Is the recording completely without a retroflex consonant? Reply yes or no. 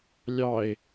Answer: yes